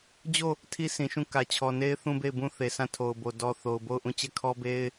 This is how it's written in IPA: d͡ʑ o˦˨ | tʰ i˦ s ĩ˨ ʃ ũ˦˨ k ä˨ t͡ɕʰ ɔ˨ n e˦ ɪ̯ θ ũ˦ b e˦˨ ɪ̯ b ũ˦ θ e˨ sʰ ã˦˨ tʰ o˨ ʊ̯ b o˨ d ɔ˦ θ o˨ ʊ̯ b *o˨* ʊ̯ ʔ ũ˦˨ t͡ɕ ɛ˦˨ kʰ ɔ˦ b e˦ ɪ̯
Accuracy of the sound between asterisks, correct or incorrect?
incorrect